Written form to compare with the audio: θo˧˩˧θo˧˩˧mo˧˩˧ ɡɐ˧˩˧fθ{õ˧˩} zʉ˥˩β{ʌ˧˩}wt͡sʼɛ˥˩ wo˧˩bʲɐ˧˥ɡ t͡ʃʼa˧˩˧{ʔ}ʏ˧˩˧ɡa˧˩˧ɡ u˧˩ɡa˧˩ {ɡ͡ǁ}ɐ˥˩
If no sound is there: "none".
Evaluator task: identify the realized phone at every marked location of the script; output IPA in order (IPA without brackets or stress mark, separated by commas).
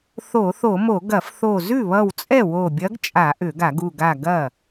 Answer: o˧˩, ʌ˧˩, ʔ, ɡ